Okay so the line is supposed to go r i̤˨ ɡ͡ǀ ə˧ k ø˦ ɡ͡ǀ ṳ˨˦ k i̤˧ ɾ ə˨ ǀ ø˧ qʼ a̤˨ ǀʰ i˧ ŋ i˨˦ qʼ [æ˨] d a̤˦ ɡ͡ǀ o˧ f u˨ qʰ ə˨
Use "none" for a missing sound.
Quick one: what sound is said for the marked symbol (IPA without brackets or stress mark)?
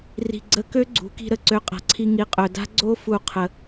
œ˨